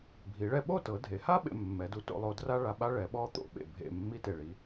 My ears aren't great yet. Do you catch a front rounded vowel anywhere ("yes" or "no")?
no